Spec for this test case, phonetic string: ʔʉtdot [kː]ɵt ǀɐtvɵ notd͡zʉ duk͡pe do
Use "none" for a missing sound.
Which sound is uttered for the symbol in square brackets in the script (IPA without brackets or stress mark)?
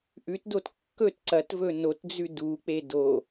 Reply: kː